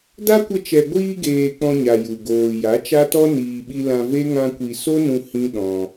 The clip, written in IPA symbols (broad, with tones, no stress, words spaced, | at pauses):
da˦kʷə˧t͡ʃɛ˨ ɡʷiː˧ɡeː˨ k͡pɔ̃˧ɲa˨ ju˨ɡoː˨ ja˨˦t͡ʃa˦tɔ˦ niː˨ɓi˧ lã˧ve˦ ŋã˧kʷi˨ so˦nũ˧ hĩ˦ɗɔ̃˧